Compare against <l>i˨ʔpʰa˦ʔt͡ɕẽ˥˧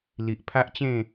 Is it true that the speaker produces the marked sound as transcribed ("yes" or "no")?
yes